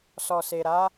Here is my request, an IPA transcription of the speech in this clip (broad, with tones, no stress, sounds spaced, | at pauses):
s ɔ˨ s e˨ ɾ a˨˦